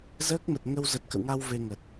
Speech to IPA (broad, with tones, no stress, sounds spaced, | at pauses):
z əː˦˥ k̚ m ə˨˩ t̚ ŋ ə˧ w z ə˨˩ t̚ k ə̰˧˨ w ŋ a˧ w v e˧ ŋ ə˨˩ t̚